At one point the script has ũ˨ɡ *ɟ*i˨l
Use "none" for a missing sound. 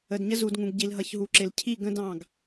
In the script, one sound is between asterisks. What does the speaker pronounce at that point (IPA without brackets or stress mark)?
ɟ